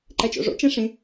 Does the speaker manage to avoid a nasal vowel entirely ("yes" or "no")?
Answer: no